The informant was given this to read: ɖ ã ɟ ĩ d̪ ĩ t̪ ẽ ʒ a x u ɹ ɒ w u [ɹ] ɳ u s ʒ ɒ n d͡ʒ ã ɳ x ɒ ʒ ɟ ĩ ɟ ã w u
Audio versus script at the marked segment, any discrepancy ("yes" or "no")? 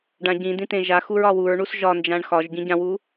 no